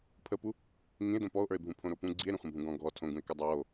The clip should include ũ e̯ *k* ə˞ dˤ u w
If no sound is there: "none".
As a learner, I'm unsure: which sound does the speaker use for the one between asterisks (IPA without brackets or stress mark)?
k